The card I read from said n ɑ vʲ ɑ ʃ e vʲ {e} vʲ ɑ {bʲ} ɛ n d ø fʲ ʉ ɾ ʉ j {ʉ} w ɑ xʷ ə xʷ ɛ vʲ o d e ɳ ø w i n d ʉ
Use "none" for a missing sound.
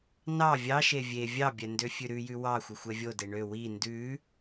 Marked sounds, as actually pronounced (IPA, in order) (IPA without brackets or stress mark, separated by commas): e, bʲ, ʉ